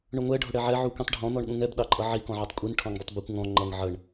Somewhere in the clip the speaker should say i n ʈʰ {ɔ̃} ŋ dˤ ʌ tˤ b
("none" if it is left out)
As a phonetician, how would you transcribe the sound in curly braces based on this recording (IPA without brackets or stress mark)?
ɔ̃